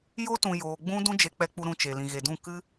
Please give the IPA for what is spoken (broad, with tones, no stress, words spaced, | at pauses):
jo˦tũ˨ joː˧ ɡ͡bũ˦ dũ˦d͡ʒe˧k͡pɛ˧k͡pu˧ ɾũ˧t͡ʃe˨ lĩ˨ɣe˨dũ˦˨ kɨ˦